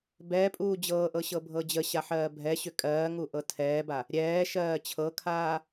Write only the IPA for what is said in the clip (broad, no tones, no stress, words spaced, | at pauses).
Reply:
bɛpʼuː d͡ʑɤːʔɤ ɕɤbʱɤd͡ʑəɕa ħɜːbʱɛɕʏ kʼɜː ŋuʔɤtʰɛːba | ɾʲɛːʃɜː t͡ɕʰɤkʰaː